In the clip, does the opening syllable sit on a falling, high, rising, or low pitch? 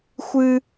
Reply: high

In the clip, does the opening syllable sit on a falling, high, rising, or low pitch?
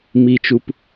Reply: low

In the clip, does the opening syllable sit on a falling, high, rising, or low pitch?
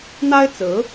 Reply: high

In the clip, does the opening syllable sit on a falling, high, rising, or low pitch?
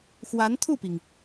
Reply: rising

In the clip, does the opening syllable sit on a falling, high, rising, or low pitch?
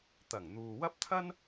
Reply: low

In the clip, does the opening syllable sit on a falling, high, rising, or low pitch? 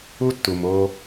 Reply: high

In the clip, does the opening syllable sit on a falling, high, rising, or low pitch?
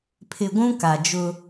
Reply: low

